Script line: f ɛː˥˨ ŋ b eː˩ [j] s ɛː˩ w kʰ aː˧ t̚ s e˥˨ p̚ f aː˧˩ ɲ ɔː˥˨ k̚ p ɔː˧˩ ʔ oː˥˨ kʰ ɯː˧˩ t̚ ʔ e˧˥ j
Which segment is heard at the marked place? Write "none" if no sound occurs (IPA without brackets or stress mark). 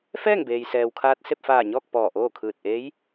j